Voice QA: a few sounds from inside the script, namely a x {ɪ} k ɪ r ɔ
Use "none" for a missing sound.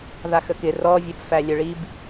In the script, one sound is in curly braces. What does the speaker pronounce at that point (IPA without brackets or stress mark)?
ə